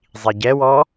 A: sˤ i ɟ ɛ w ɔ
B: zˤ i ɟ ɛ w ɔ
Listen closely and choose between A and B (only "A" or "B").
B